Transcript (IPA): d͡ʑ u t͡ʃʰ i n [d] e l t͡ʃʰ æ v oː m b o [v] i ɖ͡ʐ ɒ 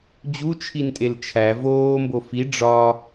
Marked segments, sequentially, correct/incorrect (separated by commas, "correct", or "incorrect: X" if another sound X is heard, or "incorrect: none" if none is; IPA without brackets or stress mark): incorrect: tʼ, incorrect: f